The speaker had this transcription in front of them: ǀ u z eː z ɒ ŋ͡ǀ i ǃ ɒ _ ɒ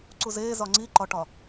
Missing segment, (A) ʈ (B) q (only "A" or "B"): A